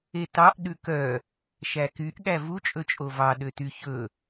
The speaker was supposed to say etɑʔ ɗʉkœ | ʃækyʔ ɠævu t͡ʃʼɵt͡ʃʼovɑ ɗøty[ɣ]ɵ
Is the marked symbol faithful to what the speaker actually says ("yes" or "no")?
no